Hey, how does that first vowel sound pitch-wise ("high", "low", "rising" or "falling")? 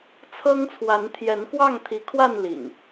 high